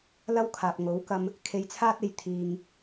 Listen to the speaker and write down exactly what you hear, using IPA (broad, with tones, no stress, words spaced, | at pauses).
lɐ˥wkʰaː˨p̚ŋo˨˥w kɐ˥m | kʰe˧jt͡sʰaː˥t̚e˨˧j t̪ʰiː˧ŋ